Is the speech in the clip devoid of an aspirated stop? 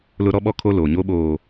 no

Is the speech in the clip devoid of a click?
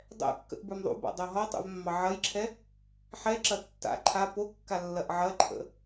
no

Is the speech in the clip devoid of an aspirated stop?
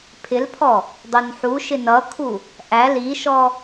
no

